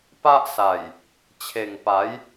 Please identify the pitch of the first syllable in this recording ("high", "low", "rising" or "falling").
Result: high